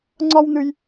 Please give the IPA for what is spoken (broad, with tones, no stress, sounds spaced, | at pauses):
ŋ͡ǀ ɒ˥ w n̪ ɨ˦ j